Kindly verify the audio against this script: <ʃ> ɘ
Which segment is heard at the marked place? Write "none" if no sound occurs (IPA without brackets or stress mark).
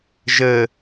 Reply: ʒ